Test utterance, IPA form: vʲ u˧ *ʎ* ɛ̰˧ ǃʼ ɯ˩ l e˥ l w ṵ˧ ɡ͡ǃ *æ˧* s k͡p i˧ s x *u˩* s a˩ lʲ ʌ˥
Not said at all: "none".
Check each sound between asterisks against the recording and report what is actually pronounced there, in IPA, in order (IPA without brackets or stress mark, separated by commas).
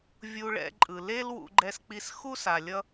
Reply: ɭ, ɛ˧, u˥